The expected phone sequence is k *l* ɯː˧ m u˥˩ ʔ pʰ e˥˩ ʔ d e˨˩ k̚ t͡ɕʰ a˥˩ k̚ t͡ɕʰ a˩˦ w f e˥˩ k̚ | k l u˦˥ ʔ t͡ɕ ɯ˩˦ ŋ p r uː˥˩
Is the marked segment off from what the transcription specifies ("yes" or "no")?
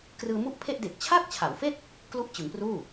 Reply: yes